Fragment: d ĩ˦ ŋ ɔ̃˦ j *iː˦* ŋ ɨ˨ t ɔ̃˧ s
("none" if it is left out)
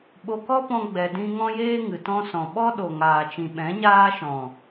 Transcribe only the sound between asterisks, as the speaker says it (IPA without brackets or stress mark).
eː˦